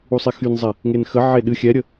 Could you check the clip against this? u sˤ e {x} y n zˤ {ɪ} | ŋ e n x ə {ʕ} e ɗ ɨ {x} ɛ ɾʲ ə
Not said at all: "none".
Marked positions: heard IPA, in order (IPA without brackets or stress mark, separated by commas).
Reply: x, ɛ, ʕ, xʲ